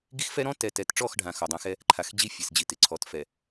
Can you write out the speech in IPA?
ɡ i˦ x f ɛ˦ ɾ ɔ̃˦ t ɛ˨ t ɛ˨ t ʈ͡ʂ ɔ˦˨ x ɖʱ ã˨ x ɔ˨ dˤ ã˦ x ɛ˦ | ǃʰ a˨ x d͡ʑ i˦ fʲ e˨ s d͡ʑ i˨ t ɪ˨ ǀʰ ɔ˨ t f ɛ˨

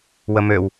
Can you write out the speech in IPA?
w ə m ø w

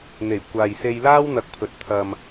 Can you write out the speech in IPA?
n̪ e˨˩ j kʷ aː˨ j s e˧ j l aː˥ w n̪ ɐ˧ k̚ pʰ ɵ˨ t̚ t̪ʰ ɐ˨ m

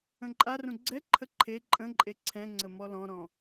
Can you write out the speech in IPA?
ə̃ ǃʼ a r ũ ɡ͡ǀ ɛ ǃʰ ə ǃʰ e ǃʼ ə̃ ǃʼ e ǀʰ ɛ̃ ŋ͡ǀ ə m ɔ l ɔ̃ ɾ ɔ̃

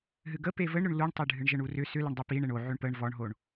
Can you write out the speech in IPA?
ɦ ɨ ɡ ə p e v ə ɳ ɾ ʏ ɳ l u ɳ tˤ e ɖʱ ɨ ɳ ʒ ə ɳ u r ʏ s ʏ l ə ɳ dˤ ə p i ɳ e ɳ o ʕ ʏ ɳ p ə ɳ v ɔ ɳ ɦ o ɳ

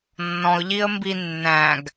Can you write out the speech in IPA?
nː ɔ̃ ʊ̯ ʎ i ə̯ m b i nː æ̃ ɡ

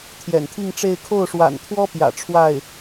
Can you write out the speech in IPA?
t̪ʰ j ɛ̰˨˩ n t̪ʰ i˥˧ ŋ ʈ͡ʂ e˥˧ ɪ̯ kʰ o˥˩ ʊ̯ ʂ w a̰˨˩ n t̪ʰ w ɔ˥ p j ä̰˨˩ ʈ͡ʂʰ w a˥˩ ɪ̯

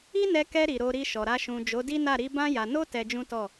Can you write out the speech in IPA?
i˦ n ɛ˧ k ɛ˧ ɾ i˨ ɾ o˧ ɾ i˧ ʃ ɔ˨ ɾ a˧ ʃ ũ˨ d͡ʒ o˨˦ d i˦ n a˦˨ ɾ i˧ b ã˦ j a˧ n o˦ t ɛ˧ d͡ʒ ũ˦ t ɔ˦˨

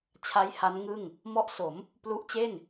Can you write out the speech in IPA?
t͡ɕʰ a˦˥ j h a˦˥ n ŋ ɯ˥˩ ŋ | m ɔ˦˥ ʔ s o˩˦ m | p l u˦˥ ʔ t͡ɕ e˥˩ n

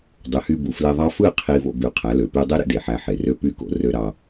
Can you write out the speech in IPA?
dˤ y˨ h y˧ b u˨ f l e˧ ðˤ ɑ˦ f ɯ˦˨ qʰ i˧ v o̰˧ b y˨˦ qʰ æ˨˦ l ø˨ p y˧ dˤ e˦ ɾ ḛ˦ d e˨ ħ æ˧ ħ e˨ r ø˧ p y˦˨ k o̰˧ r ø˧ ɾ ɑ˧

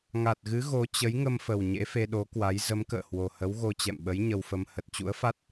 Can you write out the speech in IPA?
ŋ a˨˩ t̚ ɣ ɨ˨˦ ɣ o˨˦ t͡ɕ ə˨˦ j ŋ ə˧ m f ə˨˩ w ɲ ḛ˧˥ f e˧ ɗ o˨˦ k w a˨˦ j z ə˨˦ m k ə̰ː˧˨ h w o˨˩ h ə˨˦ w ɣ o˧ t͡ɕ ɛ̰˧˨ m ɓ ə˨˦ j ɲ ə˧ w f ə˧ m h ə˨˩ t̚ t͡ɕ ṵ˧˥ ə̯ f a˦˥ t̚

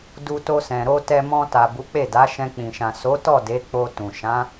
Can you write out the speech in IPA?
d u˧ t o˧ s ɛ̃˨ ɾ o˧ t ɛ˧ m ɔ̃˧ t a˨ b u˨˦ k͡p e˦˨ d a˨˦ ʃ ɛ̃˧ k͡p ĩ˨ ʃ ã˨ s o˨˦ t ɔ˦˨ d e˨˦ k͡p o˧ t ũ˨ ʃ ã˨˦

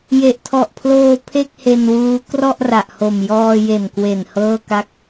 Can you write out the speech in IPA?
j e˨˩ ʔ tʰ ɔ˨˩ ʔ pʰ l oː˧ pʰ e˥˩ k̚ h e˧ n w uː˦˥ k r ɔ˥˩ ʔ r a˨˩ ʔ h o˨˩ m j ɔː˧ j e˨˩ n k w e˨˩ n h ɤː˥˩ k a˥˩ k̚

